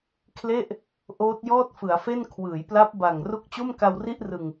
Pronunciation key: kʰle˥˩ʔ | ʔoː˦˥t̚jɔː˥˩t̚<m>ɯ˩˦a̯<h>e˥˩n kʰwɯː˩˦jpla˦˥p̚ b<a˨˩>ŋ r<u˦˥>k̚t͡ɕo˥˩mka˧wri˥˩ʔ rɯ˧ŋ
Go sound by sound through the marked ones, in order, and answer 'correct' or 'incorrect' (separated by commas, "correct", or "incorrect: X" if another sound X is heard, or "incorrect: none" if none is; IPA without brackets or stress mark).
incorrect: f, incorrect: f, correct, correct